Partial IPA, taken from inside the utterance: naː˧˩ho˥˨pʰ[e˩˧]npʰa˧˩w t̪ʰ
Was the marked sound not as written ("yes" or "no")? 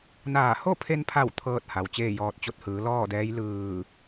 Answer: yes